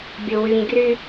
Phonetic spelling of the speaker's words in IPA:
bʲ o w y ɲ ɡ r y

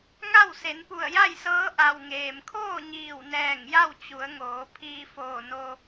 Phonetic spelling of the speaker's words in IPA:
ŋ a˥˨ w s e˩˧ n p u˧˩ ə̯ j a˥˨ j s ɤː˧˥ ʔ a˩ w ŋ eː˩ m kʰ oː˥˨ ɲ iː˧˩ w n ɛː˧˩ ŋ j a˥˨ w t͡ɕ u˩˧ ə̯ ŋ oː˩˧ pʰ iː˧ f oː˧˩ n o˧

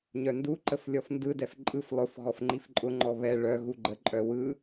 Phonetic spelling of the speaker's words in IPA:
ɲ œ n d u ǃ ə f lʲ ɔ f n d ɯ d ɛ f ǃʼ ɯ f lˠ ʊ f ɣ ɔ f ŋ͡ǃ i f ǃʼ ʊ ŋ͡ǃ ɔ β ɛ ɭ œ ɣ u ɡ͡ǃ ə ǃʼ œ w ɯ

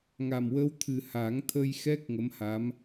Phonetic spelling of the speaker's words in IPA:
ŋ a˨˩ m w əː˧ w t̪ʰ ɨ˨˩ h a˨˩˦ ŋ t̪ʰ ə˧ j x ɛ˦˥ k̚ ŋ ə˧˥ m h a˧˥ m

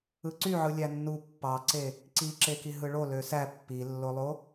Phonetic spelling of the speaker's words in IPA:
ɯ ǀ y ʕ ɯ lʲ æ nː u pː ɑ ǀ e | ǀ i ǁ e k i ɦ ɯ ɭ o l ø s æ pː i lː o lˠ o

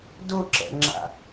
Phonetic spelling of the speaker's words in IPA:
d ʊ ǁ ɛ̰ ŋ͡ǁ a̰

